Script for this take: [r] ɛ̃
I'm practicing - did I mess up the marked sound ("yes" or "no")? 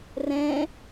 no